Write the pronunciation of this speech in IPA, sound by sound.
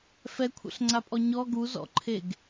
f ɛ kʷʰ ɛ̰ ɬ ŋ͡ǀ a pʼ ɔ ɲ ɔ ɡ u z ɔ̰ ǃʰ e ɡ

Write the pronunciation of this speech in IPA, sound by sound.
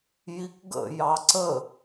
j i k ɡ ə̰ j ɑ ǀ ə

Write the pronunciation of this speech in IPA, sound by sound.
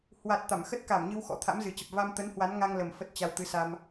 h w a˨˩ t̚ t̪ a˧˩ m x ə˦˥ t̚ k a˧˩ m ɲ ɨ˧ w x ɔ̰˧˥ t̪ʰ a̰˧˥ m z ɨ˨˩ t͡ɕ ə˨˩ p̚ v a˧ m t̪ ə˨˦ n h w a˨˦ n ŋ a˧ ŋ l ə˨˩ m f ə˦˥ t̚ t͡ɕ a˧ w t̪ ɨ˨˦ s a˧ m

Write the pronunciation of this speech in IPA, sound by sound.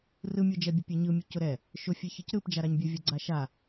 r ɯ mʲ o d͡ʒ ɛ bʲ ʊ pʲ ɛ ɲ ɯ mʲ ʊ c ʊ ɾ ɛ | ʃ ʊ fʲ ɛ ç ɯ c ɾ ɯ p d͡ʒ a ɾ a ɲ bʲ ʊ vʲ ɯ ɡ͡ǀ a ʃ a

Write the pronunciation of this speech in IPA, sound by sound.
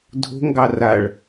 dʱ o̤ ŋ ɡ ɑ r a ɭ

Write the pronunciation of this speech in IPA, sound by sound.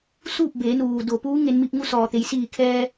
s uː˥˨ p̚ b eː˩˧ n uː˩ d o˩ p uː˧˥ ŋ e˧ n m i˧ p̚ ŋ u˧˥ s ɔː˩ t̪ e˩˧ j s iː˧˩ kʰ ɛː˧

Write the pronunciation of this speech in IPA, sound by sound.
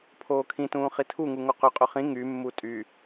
pʰ oː kʰ ĩ t ũː χ i tʰ u ŋ u ŋ o q ø qʼ ɵ χ ĩ ŋ y mː u tʼ y

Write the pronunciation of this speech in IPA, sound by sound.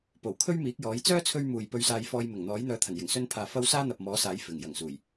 p o˨˩ w kʰ ɵ˥ ɥ m iː˨˥ k̚ j ɔː˨˥ j t͡s œː˥ t͡sʰ ɵ˧ ɥ m uː˨ j p ɵ˧ ɥ s aː˧ j f ɔː˧ j m ɪ˨˩ ŋ n̪ ɔː˨˥ j n̪ œː˨˧ t̪ʰ ɐ˨˩ n j ɪ˨˩ ŋ s ɵ˧ n pʰ aː˨ f ɐ˥ w s aː˥ n̪ ɐ˨ p̚ m ɔː˨˥ s aː˨˥ j f ɪ˨˩ ŋ j ɐ˨˩ ŋ s uː˨˩ j

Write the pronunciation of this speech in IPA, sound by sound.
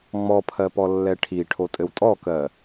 ŋ͡m ɔ pʰ ɜ p ɔ lː ɛ ʈʰ i ʈʰ o tʼ ɘ w tʼ ɔ k ɜ

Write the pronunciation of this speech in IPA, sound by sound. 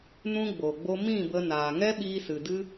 n ũ˦ ɡ͡b o˨ ɡ͡b o˦ m ĩ˦˨ b ə˧ n aː˨ ŋ ɛ˦ ɓ iː˧ s ɨ˨ d ɨ˦

